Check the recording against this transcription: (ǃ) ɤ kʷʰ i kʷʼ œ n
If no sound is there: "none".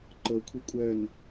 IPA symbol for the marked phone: ǃ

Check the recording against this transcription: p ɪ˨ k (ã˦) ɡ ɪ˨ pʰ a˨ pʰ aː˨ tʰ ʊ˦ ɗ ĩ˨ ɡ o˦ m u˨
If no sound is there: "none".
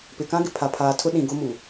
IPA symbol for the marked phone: ã˦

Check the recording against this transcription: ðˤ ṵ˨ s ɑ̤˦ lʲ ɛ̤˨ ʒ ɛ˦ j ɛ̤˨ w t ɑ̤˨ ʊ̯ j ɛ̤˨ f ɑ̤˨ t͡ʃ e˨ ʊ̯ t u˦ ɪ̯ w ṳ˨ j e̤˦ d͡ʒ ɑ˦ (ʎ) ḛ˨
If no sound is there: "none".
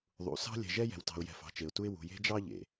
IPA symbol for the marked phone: ʎ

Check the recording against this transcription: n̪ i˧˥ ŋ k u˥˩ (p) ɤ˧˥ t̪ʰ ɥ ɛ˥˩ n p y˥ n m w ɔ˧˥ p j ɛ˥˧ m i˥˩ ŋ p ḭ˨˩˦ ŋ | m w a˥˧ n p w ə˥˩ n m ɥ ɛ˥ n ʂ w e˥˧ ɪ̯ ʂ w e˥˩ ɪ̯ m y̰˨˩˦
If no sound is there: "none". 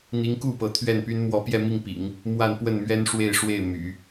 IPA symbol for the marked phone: p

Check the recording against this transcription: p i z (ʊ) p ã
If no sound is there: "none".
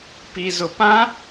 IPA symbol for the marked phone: ʊ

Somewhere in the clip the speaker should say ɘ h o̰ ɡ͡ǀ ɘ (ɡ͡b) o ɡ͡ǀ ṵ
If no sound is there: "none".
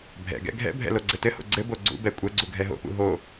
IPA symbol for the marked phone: b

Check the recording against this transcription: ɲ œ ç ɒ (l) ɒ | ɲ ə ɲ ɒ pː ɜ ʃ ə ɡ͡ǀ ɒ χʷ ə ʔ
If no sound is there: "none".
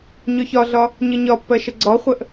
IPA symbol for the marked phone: ɮ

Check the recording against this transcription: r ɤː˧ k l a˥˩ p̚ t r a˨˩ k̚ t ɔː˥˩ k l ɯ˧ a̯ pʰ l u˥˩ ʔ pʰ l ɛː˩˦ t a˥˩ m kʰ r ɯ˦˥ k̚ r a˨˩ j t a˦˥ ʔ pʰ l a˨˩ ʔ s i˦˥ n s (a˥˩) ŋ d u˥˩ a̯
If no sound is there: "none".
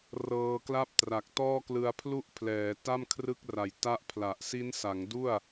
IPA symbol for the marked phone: a˩˦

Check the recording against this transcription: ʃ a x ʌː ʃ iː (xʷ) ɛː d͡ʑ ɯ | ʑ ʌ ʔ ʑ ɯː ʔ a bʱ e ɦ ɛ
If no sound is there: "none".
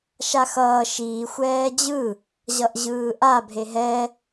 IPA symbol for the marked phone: xʷ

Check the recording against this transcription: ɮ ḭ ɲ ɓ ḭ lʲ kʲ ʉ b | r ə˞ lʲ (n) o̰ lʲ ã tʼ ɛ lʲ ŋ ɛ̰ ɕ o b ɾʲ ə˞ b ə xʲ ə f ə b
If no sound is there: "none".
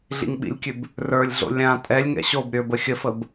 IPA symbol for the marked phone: ɮ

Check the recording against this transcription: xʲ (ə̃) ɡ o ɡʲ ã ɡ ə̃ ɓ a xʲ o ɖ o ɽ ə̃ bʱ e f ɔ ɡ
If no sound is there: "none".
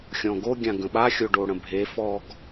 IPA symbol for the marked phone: ɔ̃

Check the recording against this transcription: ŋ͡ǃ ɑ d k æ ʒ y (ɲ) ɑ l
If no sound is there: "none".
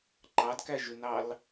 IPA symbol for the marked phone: n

